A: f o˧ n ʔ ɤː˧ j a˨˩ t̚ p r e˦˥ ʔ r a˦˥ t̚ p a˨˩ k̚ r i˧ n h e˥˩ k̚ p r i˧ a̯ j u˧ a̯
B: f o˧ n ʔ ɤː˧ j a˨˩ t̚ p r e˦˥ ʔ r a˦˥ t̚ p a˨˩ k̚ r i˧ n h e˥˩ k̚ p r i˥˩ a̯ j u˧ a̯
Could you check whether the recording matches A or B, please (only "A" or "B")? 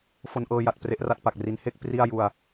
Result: B